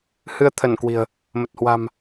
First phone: h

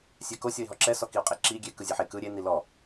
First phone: sʲ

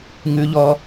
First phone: ŋ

